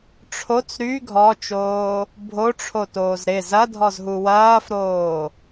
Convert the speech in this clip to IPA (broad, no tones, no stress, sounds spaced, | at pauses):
ʈ͡ʂʰ o t͡s ɾ y ɡʱ ɔ t͡ʃ oː | bʱ o ʈ͡ʂʰ o t oː z ɾ ɪ z ɐ dʱ ɔ z ɦ u w ɐː f ɾ oː